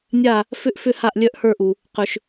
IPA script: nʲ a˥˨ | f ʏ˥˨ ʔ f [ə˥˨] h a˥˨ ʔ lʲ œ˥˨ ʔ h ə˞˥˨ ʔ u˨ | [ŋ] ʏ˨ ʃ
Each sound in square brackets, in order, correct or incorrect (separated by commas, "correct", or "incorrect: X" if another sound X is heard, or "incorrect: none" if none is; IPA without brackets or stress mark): incorrect: ʏ˥˨, incorrect: q